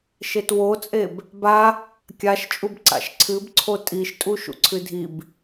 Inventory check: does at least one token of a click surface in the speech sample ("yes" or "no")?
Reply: yes